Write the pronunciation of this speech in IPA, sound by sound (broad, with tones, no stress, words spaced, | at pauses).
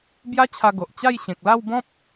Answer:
bja˦t͡ɕʰa˧ ɡo˨ʔ t͡ɕa˥˧j ɕẽ˨k̚ la˥˧wbɔ̃˦p̚